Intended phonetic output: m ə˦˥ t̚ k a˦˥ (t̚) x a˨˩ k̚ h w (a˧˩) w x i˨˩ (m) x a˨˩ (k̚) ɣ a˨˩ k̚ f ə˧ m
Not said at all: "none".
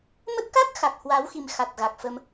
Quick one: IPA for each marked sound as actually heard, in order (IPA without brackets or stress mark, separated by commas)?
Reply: k̚, a˨˦, m, t̚